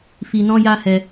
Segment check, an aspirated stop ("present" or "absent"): absent